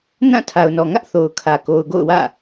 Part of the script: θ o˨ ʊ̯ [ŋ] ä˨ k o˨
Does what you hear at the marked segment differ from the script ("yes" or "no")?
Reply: yes